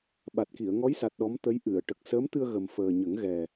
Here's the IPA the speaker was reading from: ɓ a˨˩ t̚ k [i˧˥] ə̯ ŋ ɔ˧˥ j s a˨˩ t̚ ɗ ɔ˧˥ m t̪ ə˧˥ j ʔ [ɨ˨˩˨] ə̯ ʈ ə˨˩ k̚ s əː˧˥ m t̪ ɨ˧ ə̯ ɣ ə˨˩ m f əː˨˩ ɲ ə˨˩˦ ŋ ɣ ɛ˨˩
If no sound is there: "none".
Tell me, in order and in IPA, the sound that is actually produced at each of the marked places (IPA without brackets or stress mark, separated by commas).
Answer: i˨˩˨, ɨ˨˩˨